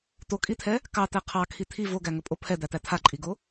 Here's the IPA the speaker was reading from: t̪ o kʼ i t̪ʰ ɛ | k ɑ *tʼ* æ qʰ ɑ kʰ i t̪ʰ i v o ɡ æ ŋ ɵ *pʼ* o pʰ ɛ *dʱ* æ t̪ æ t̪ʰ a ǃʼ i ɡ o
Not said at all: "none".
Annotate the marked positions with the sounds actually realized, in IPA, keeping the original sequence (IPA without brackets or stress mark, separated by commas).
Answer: t̪, pʼ, d̪